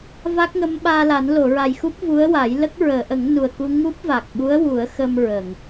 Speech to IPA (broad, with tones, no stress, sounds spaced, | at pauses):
v a˦˥ k̚ ŋ ə˧˥ m ɓ aː˧ l a˨˩˦ n l o˨˩˨ ɹ a˨˩ j x u˦˥ p̚ v u˧˥ ə̯ w a˨˩˦ j l ə˦˥ k̚ ɹ əː˨˩˨ ʔ ə˨˩˦ ŋ n u˨˩ ə̯ k u˧ ŋ u˦˥ p̚ v a˨˩ k̚ ɓ u˧˥ ə̯ w u˨˩˦ ə̯ x ə˧ m ɹ ə˨˩˨ ŋ